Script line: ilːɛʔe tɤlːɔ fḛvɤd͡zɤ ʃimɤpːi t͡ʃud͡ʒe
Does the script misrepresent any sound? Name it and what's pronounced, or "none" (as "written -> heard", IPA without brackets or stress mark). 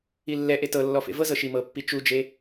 d͡z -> z